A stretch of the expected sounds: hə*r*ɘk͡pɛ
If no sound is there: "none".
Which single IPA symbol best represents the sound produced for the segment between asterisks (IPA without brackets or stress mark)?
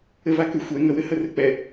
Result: r